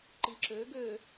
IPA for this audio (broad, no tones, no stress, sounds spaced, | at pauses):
ǃ i ǁ ø ɡ ø